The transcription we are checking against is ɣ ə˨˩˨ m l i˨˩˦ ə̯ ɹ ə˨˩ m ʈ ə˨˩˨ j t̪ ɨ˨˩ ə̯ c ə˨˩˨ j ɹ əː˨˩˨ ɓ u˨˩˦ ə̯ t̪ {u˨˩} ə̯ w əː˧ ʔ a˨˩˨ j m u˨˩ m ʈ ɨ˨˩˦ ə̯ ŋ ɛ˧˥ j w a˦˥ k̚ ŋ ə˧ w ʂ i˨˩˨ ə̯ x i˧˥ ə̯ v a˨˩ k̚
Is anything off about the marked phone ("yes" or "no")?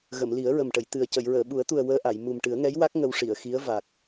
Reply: no